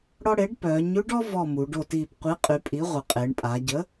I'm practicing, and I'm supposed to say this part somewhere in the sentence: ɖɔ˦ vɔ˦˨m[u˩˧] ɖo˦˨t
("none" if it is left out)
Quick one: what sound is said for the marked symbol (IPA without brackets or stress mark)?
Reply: u˩˧